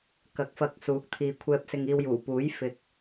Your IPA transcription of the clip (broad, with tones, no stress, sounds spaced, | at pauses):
k ɐ˨˥ k̚ f ɐ˧ k̚ s uː˨˥ k̚ t̪ʰ iː˨ kʷʰ ɛː˧ p̚ s ɪ˧ ŋ iː˧ w j uː˨˩ p uː˨˥ j f ɪ˨ k̚